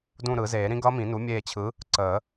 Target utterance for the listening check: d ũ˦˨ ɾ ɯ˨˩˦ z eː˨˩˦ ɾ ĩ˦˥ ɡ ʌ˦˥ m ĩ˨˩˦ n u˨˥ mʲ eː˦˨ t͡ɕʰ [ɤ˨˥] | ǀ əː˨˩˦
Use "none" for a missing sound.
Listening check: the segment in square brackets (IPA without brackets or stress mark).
ɯ˨˥